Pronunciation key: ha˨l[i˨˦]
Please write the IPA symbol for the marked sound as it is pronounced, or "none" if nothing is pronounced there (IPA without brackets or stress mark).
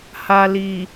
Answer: i˨